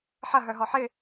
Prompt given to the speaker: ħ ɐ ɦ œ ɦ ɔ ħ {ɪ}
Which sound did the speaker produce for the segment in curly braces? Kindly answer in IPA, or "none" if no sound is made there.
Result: ɪ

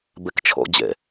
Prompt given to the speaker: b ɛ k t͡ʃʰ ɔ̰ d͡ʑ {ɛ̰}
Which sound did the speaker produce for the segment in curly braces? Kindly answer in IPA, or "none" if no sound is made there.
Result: ɛ̰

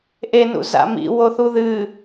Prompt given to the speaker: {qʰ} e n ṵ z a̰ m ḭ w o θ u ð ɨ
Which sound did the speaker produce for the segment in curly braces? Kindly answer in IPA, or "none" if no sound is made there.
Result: ʔ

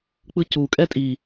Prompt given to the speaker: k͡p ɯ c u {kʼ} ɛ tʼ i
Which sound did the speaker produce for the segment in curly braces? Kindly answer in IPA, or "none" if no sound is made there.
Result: kʼ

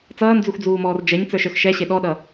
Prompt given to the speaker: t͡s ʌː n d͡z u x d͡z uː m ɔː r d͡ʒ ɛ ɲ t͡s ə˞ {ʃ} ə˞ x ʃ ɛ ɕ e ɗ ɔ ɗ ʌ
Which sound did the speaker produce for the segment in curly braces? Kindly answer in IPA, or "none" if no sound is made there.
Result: ʃ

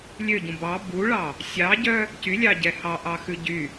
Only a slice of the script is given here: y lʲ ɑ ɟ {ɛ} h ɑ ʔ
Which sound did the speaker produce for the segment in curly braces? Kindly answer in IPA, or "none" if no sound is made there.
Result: ɛ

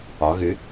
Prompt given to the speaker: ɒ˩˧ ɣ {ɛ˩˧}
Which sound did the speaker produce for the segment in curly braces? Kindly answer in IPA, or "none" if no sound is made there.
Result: ɨ˩˧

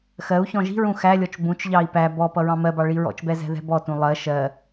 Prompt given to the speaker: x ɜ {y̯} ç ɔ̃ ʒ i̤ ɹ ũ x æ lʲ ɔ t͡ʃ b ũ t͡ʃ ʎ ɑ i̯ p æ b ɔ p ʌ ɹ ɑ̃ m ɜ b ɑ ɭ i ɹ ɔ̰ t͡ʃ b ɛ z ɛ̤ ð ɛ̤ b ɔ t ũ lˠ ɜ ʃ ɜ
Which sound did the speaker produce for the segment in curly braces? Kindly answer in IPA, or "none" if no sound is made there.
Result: u̯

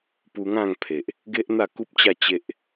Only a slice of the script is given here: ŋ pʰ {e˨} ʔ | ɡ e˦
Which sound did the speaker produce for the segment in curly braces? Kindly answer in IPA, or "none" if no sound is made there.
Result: e˨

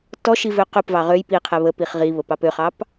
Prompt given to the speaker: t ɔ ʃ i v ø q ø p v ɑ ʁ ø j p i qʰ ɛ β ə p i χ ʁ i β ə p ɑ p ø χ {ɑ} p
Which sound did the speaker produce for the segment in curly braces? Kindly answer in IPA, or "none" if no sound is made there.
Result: ɑ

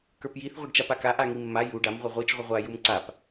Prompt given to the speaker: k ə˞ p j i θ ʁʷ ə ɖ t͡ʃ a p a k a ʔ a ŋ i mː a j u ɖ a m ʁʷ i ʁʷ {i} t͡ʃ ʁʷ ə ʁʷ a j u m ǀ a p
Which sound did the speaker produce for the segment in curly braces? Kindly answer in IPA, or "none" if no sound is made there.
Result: i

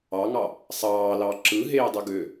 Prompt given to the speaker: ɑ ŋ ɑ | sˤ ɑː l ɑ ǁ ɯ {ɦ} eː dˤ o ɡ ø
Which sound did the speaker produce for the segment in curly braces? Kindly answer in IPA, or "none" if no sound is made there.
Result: ɦ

